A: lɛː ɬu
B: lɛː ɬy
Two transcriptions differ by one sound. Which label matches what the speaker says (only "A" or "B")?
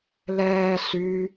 B